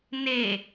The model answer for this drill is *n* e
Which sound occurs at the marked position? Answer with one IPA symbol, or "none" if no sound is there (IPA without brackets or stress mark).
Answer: n